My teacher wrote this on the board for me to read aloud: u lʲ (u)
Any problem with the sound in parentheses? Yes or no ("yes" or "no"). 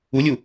no